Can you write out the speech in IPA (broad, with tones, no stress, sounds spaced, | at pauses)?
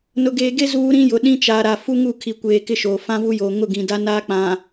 n ʊ˨ ɡ eː˨ ɡ e˦ z uː˦ ɾ ĩ˦ j ʊ˨ ɗ ĩ˦ t͡ʃ a˨ ɾ a˨ f u˦ ŋ u˦˨ kʰ i˨ kʷ eː˨ k ɪ˦ ʃ oː˨ f ã˦ v u˦ j oː˨ ŋ ʊ˦˨ ɡ ĩ˨ d a˦ n aː˦ k͡p ã˨